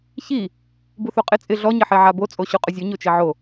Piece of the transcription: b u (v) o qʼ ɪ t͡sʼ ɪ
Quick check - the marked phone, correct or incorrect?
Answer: incorrect